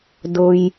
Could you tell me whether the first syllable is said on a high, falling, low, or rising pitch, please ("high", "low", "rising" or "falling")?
low